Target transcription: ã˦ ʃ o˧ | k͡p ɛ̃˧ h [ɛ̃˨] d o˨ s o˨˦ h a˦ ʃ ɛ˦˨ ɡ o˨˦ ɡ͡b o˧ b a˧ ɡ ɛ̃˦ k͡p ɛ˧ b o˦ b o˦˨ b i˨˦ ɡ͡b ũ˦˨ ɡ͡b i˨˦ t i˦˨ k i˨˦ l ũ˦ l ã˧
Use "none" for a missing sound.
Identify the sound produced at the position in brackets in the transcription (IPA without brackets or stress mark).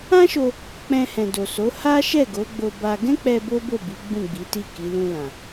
ɛ̃˨